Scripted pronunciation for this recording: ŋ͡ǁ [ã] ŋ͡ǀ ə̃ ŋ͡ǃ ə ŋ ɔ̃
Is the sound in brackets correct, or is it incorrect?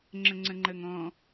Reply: incorrect